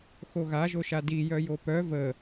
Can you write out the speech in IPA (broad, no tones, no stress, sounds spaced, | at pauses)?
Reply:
x o ɣ a ʒ o ʃ a d i j œ j o p œ v ə